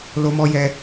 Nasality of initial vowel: oral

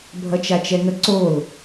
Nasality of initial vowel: oral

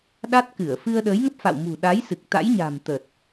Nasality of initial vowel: oral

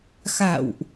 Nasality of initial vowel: oral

